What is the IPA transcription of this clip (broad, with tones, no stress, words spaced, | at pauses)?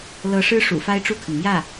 lɤ˧˥ʂɻ̩˥ ʂṵ˨˩fa˥ɪ̯ʈ͡ʂu˥˩kʰə˩n mjä˥˩